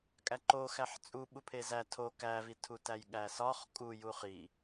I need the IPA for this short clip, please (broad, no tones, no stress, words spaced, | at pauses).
kʼæǃoxæħ t͡sʼu ɓupʰezæ tʰo kævitʰu tæjɠæsɒχ kʼuju χi